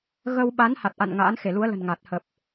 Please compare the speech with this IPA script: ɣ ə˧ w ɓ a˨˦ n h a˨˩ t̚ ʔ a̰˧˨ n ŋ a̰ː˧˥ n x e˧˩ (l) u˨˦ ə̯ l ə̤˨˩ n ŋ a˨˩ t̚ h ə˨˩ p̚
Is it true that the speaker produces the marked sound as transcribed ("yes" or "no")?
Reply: yes